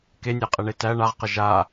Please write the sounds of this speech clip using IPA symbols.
k e nʲ æ qʼ ɛ ɳ e t æ ɳ a ʁ q ə ʒ a

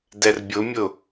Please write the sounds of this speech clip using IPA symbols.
d ɛ r bʲ ʊ mʲ ʊ

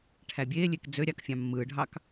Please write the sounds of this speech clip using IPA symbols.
ʈʰ æ bʲ eː lʲ e k d͡z ø ɾʲ ɑ k fʲ ɑ̃ mː ɯː ɖʱ ɑ k

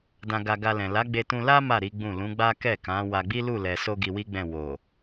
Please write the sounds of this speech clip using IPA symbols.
d ã˧ ɡ a˧ ɡ a˧ l ɛ̃˨ l a˨˦ ɡ͡b e˧ t ũ˧ l a˦ m a˦˨ ɾ i˨˦ ɡ͡b ũ˦˨ l ũ˨˦ ɡ͡b a˦ k ɛ˦˨ k ã˨˦ w a˧ ɡ͡b i˦ l u˦˨ l ɛ˨ s o˧ ɡ i˧ w i˦ ɡ͡b ɛ̃˦˨ w o˨

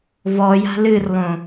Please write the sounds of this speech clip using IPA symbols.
v ɔ j a̤ l ɨ r lˠ õ

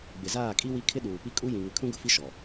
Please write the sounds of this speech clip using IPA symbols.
ɡ͡b ɪ˨ z aː˦˨ kʼ i˦ w i˦ kʰ ɪ˦ ɗ uː˨ p i˦ kʼ u˦ j ĩ˨ ŋ ɪ˨ kʰ ũ˦ ɡ ʊ˨ f i˦ ʃ ɔ˨

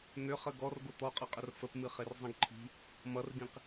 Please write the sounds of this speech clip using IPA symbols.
n̪ ʏ χ ə ɡ ɔ r ɡ o t̪ ɔ qʼ ʌ qʼ ə r f ə p m ɨ χ e r zˤ ĩ ɡ ǃʰ i̤ | m ʌ r ɡ ĩ q

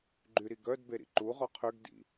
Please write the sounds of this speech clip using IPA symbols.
ɡ͡ǃ y ɾ i ɡ œ d b e ɾ ḭ ǃ u ʁ ɔ qʰ ø ɡ d ḭ

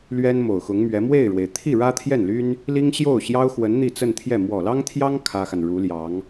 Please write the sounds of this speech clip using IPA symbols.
l ɥ ɛ˥ n m o˨˩ ʊ̯ x ʊ˧˥ ŋ m ɥ ɛ˧˥ m w e˥˩ ɪ̯ ɻ w e˩ ɪ̯ t̪ʰ i˥˩ ɻ ä˥ t̪ʰ j ɛ˥˩ n l y˥ n | l i˥ ŋ ɕ j o˥˩ ʊ̯ ɕ j ɑ˥ ʊ̯ x w ə˧˥ n n̪ i˥˧ t͡s ə˥˧ n t̪ʰ j ɛ˥˩ m w ɔ˨˩ l ɑ˥ ŋ t̪ʰ j ɑ˥ ŋ kʰ ä˥ x a˨ n ɻ u˧˥ l j ɑ˧˥ ŋ

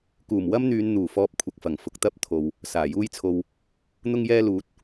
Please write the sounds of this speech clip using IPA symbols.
k uː˨˩ m w ɐ˥ m n̪ yː˨˧ n n̪ uː˨˩ f ɔː˧ p̚ kʷʰ ɐ˨ k̚ f ɐ˨˩ ŋ f ʊ˨ k̚ t̪ ɐ˥ p̚ t̪ʰ o˨ w | s aː˨˩ j uː˥ j t͡sʰ o˧ w | n̪ ʊ˥ ŋ j ɛː˥ l uː˨˥ t̚

